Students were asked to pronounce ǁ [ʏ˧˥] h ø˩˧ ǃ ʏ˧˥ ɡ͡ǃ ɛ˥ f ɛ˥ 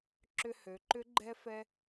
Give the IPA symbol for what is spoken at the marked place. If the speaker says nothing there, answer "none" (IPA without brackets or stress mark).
ʏ˧